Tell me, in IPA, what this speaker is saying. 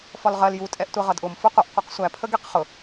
f ɒ l ʁ ɜ l j u tʼ ɛ ʔ tʷ ɛ ʁ ʌ d ʔ ʊ m f ʊ qʷ ʌ ʔ qʷ ɛ q sʷ æ pʰ ə ɡ i q χ ʊ

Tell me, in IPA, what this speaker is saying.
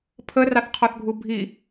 pʰ ə r ɑ θ qʰ ɔ θ ɡʱ u bʱ i

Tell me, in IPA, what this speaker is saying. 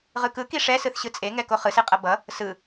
ʁ ɯ k ɯ k i ʂ ɛ s ɯ θ ɕ ɯ t͡sʼ e ŋ ɛ k o χ ɯ s e qʼ ʌ b ʌ | s ɯ

